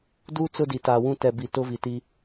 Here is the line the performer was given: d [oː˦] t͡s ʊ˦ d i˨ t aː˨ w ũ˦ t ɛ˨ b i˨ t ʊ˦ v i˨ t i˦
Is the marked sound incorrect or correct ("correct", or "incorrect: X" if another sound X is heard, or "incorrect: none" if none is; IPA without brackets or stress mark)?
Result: incorrect: uː˦